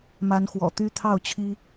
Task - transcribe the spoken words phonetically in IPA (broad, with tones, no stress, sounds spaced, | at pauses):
m a˨˦ n x w ɔ̰˨˩ t̪ y˦ t̪ʰ ɑ˥˨ ʊ̯ t͡ɕʰ i˦